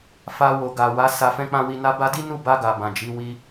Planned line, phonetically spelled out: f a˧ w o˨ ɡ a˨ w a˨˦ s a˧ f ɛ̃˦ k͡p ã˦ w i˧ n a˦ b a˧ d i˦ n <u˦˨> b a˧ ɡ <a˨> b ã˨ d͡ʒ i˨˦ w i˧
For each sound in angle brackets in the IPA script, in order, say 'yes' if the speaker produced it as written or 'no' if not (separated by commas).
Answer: yes, yes